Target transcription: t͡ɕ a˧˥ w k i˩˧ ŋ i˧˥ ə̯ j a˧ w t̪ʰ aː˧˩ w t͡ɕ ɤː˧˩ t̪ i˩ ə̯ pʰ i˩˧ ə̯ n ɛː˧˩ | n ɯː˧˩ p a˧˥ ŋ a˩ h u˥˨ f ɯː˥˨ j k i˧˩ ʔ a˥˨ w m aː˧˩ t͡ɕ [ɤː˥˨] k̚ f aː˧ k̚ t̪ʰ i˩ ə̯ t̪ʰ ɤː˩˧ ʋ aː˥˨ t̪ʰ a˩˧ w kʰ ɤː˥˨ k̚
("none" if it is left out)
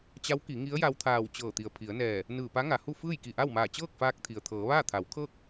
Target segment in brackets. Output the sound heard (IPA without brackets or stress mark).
ɤː˥˨